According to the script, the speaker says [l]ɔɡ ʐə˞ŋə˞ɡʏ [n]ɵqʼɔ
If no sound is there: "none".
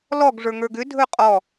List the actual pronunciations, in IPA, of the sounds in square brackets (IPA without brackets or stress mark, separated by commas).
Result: l, dʱ